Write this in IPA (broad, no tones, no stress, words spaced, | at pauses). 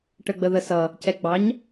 ʈəɡ͡bəðəsʌ | cɛɡ͡bɑɲ